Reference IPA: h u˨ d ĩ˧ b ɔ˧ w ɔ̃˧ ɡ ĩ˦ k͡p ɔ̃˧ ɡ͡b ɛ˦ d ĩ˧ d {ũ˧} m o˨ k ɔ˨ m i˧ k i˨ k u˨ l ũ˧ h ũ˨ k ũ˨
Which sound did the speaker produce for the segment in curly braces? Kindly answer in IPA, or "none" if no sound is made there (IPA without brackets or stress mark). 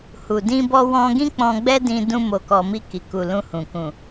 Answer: ũ˧